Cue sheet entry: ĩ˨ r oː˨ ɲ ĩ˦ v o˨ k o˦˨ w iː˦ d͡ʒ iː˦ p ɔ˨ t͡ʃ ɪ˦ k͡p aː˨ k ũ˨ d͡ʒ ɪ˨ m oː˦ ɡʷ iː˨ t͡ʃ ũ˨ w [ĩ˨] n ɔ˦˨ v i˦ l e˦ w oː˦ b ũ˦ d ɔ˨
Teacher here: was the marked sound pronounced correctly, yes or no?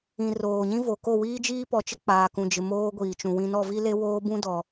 yes